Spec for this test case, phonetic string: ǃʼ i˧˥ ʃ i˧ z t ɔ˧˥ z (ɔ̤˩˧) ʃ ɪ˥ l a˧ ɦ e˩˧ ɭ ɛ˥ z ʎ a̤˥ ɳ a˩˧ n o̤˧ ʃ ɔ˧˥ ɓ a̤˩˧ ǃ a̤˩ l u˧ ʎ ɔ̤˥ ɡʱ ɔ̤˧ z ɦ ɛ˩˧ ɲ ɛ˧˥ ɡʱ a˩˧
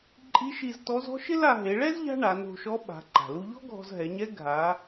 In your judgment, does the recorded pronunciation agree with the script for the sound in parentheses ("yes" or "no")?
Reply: no